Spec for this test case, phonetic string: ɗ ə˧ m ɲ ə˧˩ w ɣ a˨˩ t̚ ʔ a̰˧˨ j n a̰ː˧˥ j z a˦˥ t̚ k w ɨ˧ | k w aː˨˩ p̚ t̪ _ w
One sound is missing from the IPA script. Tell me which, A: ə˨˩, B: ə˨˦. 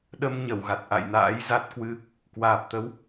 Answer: B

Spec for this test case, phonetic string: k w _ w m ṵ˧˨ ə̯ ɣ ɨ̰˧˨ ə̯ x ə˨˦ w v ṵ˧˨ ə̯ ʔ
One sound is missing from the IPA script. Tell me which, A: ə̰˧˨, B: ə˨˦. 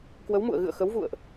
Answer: B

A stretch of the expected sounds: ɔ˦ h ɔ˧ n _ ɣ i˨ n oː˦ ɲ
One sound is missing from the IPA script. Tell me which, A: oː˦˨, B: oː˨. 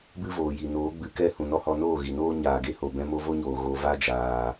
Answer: A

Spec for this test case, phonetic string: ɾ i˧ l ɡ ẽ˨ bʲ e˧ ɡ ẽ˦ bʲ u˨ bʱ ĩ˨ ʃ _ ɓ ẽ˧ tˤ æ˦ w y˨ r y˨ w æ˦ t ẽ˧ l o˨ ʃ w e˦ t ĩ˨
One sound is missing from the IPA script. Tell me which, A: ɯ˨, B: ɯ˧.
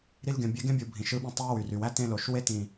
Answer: B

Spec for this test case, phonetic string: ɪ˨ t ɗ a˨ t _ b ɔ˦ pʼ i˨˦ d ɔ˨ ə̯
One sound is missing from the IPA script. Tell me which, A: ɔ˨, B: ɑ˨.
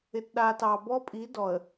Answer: B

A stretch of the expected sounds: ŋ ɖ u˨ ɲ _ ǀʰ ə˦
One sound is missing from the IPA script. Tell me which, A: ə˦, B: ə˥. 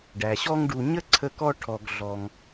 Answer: B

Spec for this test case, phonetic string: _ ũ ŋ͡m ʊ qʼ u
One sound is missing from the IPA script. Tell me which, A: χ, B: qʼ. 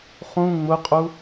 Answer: A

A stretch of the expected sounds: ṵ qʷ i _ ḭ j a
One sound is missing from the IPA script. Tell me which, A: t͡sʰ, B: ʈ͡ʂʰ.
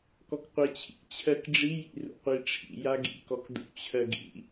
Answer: B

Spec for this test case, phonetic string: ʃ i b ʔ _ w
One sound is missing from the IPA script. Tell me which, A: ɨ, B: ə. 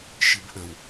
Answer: B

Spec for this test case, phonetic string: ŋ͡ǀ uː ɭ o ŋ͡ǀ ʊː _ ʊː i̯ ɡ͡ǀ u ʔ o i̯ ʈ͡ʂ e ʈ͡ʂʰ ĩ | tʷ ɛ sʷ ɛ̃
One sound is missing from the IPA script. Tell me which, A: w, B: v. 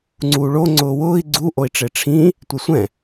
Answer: A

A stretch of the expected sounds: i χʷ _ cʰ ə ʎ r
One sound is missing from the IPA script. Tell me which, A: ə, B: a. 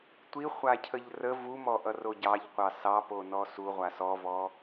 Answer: B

